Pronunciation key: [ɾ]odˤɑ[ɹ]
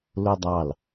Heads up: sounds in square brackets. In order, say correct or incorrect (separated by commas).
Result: incorrect, incorrect